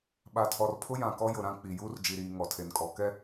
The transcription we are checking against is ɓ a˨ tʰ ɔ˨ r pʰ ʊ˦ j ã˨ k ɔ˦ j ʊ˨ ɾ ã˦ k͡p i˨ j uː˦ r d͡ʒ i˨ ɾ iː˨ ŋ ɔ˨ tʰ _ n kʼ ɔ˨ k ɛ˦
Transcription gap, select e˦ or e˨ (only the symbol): e˨